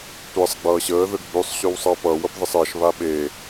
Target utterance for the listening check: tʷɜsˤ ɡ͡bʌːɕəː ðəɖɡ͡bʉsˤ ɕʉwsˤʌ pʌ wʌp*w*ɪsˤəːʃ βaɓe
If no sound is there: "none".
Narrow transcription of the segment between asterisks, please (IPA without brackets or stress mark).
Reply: ð